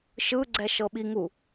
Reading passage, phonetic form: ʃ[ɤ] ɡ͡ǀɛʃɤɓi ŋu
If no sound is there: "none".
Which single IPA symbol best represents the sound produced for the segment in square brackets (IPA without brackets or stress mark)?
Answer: ɯ